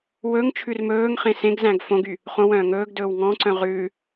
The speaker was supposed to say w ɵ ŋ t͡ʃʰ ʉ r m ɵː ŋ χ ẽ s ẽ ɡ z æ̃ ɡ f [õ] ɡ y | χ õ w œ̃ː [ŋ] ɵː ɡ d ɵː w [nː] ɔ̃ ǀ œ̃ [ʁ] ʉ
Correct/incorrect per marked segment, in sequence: correct, correct, incorrect, correct

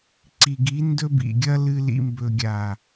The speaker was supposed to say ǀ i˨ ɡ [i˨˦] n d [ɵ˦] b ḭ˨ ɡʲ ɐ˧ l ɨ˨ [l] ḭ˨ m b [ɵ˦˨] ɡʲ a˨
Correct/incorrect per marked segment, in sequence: correct, incorrect, correct, incorrect

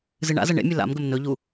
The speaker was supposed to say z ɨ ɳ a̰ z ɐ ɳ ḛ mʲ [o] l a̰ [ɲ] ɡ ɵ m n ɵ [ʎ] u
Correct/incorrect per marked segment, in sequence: incorrect, incorrect, correct

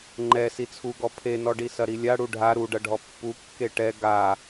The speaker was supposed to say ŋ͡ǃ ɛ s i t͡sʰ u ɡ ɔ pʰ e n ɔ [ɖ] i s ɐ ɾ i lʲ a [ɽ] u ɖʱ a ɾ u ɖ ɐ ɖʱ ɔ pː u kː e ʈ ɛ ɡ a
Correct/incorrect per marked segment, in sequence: correct, correct

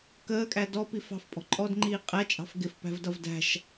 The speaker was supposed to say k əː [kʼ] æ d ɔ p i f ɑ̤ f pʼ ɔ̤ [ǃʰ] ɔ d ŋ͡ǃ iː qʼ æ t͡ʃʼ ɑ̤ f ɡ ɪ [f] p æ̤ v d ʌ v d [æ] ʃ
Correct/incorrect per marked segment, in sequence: correct, incorrect, correct, incorrect

